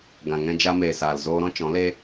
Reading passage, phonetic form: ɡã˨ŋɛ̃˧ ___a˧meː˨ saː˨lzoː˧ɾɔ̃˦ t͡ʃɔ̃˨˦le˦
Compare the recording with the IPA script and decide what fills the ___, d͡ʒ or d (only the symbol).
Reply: d͡ʒ